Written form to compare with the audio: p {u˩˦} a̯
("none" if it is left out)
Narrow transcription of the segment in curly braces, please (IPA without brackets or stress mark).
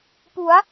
u˩˦